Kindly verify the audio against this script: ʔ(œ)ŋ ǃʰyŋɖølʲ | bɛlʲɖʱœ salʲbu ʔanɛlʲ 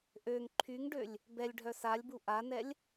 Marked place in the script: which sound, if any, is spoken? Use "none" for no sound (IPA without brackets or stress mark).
ø